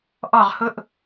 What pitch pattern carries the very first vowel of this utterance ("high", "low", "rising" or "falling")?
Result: falling